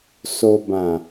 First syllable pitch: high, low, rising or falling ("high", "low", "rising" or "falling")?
low